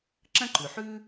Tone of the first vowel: high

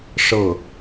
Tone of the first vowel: falling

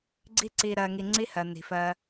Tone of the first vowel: high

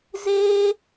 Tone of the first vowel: high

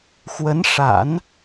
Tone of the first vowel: rising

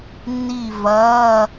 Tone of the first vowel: falling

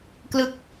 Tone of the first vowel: falling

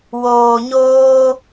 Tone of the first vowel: low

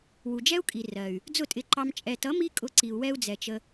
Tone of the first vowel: low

